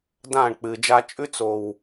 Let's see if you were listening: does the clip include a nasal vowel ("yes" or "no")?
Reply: yes